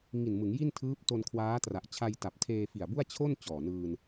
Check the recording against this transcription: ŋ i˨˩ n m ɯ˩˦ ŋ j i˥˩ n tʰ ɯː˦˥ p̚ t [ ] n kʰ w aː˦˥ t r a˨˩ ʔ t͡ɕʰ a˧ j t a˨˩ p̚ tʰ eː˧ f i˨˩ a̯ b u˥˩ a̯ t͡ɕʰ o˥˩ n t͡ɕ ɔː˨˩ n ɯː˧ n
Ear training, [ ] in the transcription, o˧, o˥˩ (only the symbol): o˧